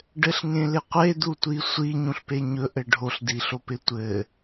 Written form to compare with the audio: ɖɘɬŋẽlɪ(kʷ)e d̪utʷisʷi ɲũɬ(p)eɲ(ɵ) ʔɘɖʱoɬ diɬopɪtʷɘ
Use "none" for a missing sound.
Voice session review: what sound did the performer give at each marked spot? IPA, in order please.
qʷ, p, ɵ

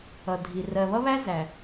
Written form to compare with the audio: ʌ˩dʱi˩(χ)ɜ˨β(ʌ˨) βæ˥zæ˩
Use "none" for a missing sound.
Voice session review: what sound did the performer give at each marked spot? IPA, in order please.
r, ʌ˥

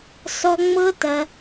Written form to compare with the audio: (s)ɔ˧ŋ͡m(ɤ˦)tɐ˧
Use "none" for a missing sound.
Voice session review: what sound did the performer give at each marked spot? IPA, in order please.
s, ɤ˦

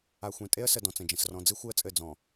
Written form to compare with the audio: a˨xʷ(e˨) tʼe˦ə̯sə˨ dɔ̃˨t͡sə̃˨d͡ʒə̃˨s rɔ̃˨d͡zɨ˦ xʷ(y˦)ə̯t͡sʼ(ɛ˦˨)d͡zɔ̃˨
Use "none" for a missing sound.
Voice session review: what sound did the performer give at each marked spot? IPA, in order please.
ẽ˨, ɨ˦, ɘ˦˨

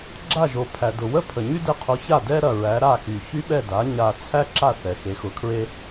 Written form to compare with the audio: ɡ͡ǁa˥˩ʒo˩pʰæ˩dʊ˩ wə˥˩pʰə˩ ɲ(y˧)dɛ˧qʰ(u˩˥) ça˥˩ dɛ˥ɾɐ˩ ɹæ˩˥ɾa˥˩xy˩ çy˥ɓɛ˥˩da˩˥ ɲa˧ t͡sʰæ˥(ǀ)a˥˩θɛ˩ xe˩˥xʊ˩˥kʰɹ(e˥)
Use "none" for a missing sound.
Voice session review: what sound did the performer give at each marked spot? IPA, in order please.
y˥, o˩˥, ǁ, e˥

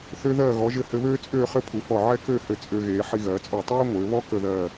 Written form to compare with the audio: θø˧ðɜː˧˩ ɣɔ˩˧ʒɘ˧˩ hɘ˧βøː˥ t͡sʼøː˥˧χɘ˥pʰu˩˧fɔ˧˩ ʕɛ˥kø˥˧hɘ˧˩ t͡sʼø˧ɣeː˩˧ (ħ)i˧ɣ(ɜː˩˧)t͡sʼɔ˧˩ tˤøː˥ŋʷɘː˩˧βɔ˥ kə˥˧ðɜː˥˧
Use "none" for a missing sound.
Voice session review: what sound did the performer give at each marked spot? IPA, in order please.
ħ, ɜː˩˧

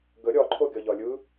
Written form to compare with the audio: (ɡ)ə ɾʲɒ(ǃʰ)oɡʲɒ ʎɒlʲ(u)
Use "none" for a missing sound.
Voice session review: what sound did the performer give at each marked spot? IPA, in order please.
ɡ, ǃʰ, ɯ

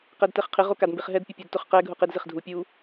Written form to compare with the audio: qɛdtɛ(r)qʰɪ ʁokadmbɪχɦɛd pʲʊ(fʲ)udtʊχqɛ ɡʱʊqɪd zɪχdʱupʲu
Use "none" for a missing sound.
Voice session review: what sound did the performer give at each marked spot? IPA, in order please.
χ, pʲ

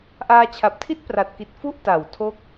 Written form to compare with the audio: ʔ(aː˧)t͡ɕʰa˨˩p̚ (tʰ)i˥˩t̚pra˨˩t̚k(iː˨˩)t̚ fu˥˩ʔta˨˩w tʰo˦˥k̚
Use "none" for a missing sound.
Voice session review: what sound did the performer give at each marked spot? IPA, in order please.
aː˧, tʰ, i˨˩

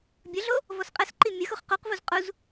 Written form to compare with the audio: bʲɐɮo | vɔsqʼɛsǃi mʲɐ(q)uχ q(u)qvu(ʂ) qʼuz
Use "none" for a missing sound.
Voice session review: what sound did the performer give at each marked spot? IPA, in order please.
x, u, z

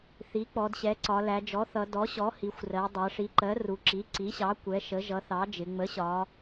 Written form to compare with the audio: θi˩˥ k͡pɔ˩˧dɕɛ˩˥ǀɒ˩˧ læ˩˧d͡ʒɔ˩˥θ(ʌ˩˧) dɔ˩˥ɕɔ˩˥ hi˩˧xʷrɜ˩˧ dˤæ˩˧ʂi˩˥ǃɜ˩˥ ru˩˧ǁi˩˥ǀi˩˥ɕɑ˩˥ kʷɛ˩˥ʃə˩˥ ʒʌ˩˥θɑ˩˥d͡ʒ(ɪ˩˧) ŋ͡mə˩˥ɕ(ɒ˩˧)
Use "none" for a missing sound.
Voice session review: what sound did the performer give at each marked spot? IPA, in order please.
ʌ˩˧, ɪ˩˧, ɒ˩˧

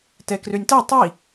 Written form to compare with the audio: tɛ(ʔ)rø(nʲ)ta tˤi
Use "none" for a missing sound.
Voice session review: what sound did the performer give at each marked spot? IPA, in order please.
k, nʲ

